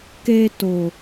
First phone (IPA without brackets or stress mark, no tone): k